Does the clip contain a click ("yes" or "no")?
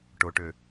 no